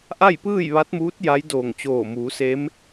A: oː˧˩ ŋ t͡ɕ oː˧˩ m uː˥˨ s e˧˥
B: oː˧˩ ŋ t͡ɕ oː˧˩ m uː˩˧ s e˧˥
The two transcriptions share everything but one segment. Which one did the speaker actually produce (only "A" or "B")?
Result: B